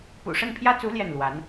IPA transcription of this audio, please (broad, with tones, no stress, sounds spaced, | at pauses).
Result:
p ṵ˨˩ ʂ ə˥˩ n pʰ j ä˥ t͡s u˧˥ l j ɛ˥˩ n l w a˧˥ n